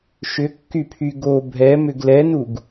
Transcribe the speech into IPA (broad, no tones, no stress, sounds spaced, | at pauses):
ʃ ʏ kː y pʰ y ɡ o bʱ ɛ m ʏ ɡ l ɛ n u ɡ